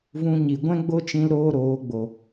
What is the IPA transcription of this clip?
v ũ˧ ɲ i˨ ɡʷ ɛ̃˦ ɡ͡b o˦ t͡ʃ ĩ˧ l ɾ oː˦ ɾ oː˨˦ ɡ͡b o˨

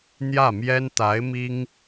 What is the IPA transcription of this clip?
n̪ j ä˥˩ m j ɛ˥ n t̪ a˧˥ ɪ̯ m i˥ ŋ

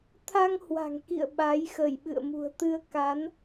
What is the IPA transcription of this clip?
t̪ʰ a˧ ŋ h w a̤˨˩ ŋ k ḭ˧˨ ə̯ ɓ a˨˦ j x ə˧˩ j ɓ ɨ̰˧˨ ə̯ m ṳ˨˩ ə̯ t̪ ɨ˧ ə̯ k a˨˦ n

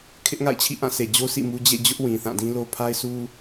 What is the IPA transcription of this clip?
kʰ ɪ˦ ʔ ŋ a̰˦˨ ɪ̯ t͡ɕʰ ḭ˦˨ ʔ ã˦˨ s e˨ d͡ʑ o˦ s ḭ˦˨ m u˦ d͡ʑ ḛ˦˨ d͡ʑ ʊ˦ ʔ w ĩ˨ θ ã˦˨ d ĩ˦ l o˦ pʰ a˦ ɪ̯ sʰ u˦

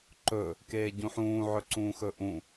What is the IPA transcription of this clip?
ǃ ɵ | k eː ɟ ũ ħ ũː ʕ ɵ ǀ ũː x ɵ ʔ ũ

